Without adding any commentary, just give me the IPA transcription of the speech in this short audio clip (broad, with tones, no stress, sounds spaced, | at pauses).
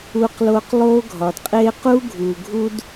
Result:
uː˧ q l o˧ q lˠ oː˥ ɡʱ ɒ˩ d qʼ eː˥ q u˥ ɡʱ uː˩ ɡʱ u˥ d